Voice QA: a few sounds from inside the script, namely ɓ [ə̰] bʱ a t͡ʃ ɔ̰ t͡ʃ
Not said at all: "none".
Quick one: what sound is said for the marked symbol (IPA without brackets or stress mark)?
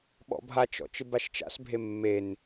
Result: ɔ̰